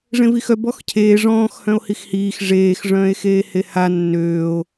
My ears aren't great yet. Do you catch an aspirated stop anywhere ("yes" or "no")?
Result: yes